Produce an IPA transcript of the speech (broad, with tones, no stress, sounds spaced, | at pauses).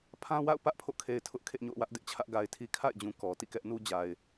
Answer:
pʰ ã˦ w a̰˦˨ ʊ̯ p ä˦ ʔ pʰ o̰˦˨ kʰ e˨ ɪ̯ tʰ ʊ˦ ʔ kʰ ḛ˦˨ ɲ o̰˦˨ ʊ̯ w ä˦ ʔ d ɪ˦ ʔ t͡ɕʰ ä˦ ʔ ɡ a˨ ɪ̯ tʰ i˦ kʰ a̰˦˨ ɪ̯ d͡ʑ ũ˨ k ɔ˨ t ḭ˦˨ k ɛ˦ ʔ n u˦ d͡ʑ a˨ ɪ̯